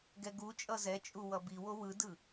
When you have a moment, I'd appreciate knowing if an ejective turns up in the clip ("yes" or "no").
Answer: yes